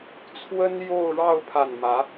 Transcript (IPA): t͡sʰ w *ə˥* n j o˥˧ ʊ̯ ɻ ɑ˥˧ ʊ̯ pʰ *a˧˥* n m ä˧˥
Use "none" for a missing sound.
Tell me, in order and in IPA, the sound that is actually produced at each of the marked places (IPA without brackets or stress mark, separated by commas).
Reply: ə˥, a˥˩